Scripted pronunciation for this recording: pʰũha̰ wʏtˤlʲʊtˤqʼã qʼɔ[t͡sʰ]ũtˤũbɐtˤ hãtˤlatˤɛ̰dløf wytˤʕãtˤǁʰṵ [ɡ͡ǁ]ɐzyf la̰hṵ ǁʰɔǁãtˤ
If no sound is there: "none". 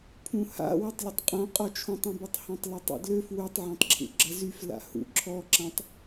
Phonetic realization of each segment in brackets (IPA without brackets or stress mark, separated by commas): t͡ʃʰ, ɡ͡ǁ